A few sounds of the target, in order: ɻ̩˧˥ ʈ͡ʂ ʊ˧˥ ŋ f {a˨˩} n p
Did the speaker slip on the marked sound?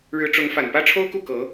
no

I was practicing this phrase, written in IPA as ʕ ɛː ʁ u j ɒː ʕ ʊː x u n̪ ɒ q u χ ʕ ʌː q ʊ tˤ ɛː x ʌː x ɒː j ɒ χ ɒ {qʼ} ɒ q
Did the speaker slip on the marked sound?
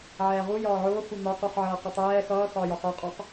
no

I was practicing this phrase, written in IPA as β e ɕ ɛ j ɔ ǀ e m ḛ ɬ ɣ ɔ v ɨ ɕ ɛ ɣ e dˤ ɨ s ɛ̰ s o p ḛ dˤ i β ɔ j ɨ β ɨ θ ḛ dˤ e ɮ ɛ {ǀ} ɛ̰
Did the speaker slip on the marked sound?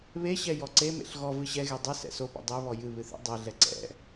no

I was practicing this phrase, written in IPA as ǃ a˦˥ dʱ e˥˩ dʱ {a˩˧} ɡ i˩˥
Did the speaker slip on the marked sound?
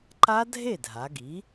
no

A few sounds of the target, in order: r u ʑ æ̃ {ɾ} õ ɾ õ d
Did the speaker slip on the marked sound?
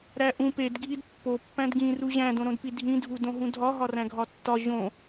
yes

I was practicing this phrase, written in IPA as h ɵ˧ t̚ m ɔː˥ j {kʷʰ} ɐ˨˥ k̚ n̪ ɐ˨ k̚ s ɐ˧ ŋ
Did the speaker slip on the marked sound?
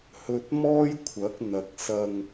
no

